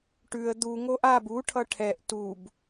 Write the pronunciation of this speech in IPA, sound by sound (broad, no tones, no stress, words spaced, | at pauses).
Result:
ʈʉə̯ d̪uŋoʔ ab uʈʰʌ ʈʰɛʔ tub